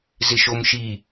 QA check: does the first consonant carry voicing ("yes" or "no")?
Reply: yes